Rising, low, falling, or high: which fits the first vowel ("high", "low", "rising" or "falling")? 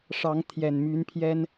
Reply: rising